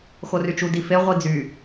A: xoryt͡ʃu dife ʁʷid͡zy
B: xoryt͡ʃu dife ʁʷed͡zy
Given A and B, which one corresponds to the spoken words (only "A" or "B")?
A